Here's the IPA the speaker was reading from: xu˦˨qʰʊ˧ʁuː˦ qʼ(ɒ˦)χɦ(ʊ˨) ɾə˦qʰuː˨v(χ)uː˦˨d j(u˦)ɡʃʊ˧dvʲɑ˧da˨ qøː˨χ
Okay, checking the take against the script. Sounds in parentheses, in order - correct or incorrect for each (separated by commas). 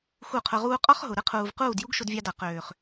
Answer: correct, correct, incorrect, correct